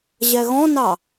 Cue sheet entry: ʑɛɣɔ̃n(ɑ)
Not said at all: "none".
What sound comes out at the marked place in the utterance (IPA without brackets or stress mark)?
ɑ